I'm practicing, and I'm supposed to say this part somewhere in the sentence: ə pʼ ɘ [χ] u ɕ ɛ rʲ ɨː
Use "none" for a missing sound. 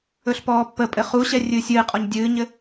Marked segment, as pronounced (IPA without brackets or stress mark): χ